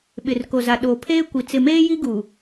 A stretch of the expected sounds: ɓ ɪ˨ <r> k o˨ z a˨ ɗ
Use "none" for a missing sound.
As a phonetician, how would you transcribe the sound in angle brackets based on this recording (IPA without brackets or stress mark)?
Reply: r